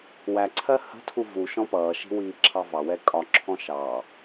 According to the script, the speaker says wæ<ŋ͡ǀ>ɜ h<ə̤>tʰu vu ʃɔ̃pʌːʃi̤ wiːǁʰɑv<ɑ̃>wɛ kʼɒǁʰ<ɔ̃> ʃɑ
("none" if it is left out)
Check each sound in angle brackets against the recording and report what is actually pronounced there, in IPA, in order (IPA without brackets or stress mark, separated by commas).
ǀʰ, ə̤, ɑ, ɔ̃